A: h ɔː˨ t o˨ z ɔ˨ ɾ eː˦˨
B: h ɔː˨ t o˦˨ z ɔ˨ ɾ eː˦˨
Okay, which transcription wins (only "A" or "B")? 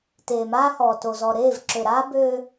A